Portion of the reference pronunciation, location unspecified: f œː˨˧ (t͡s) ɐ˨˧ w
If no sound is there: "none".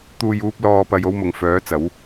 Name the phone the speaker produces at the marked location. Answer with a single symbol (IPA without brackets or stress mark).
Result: t͡s